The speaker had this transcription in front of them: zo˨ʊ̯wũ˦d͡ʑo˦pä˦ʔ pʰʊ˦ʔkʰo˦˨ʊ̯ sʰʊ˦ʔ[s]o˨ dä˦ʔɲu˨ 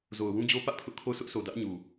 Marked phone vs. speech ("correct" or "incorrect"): correct